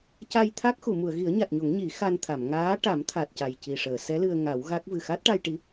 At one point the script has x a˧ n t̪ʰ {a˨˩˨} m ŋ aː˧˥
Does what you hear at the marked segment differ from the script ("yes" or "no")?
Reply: no